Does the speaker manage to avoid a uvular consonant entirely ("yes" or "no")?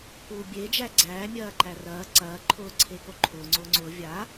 yes